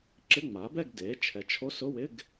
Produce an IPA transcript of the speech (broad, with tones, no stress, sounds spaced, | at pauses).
ǁ ɪ˧˥˧ ŋ͡m a˩˥ b ɛ˥˨ ɡ d e˩˥ t͡ʃʰ ɛ˩˥ t͡ʃʰ o˧˥˧ s ʊ˧˥˧ w ɪ˧˥˧ ɡ